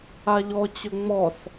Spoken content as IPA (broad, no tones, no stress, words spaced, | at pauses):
aʎɔt͡ɕɵ ŋ͡mɔs